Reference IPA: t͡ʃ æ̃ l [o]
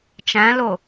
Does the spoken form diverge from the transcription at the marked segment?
no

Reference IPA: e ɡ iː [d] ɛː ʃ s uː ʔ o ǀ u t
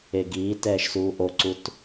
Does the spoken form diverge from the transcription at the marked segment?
yes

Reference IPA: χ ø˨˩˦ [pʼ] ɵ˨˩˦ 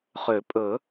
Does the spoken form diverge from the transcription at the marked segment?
no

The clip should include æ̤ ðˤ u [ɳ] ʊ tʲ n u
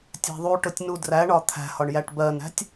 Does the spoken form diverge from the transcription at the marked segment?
yes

